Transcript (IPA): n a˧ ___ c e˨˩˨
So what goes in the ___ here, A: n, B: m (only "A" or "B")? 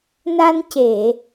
A